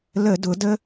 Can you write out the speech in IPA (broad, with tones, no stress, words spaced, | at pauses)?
lə˧˩˧dʊ˩˧ də˦